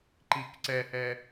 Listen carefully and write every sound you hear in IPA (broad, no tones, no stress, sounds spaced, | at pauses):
ǃ i k ǀ ɛ h ɛ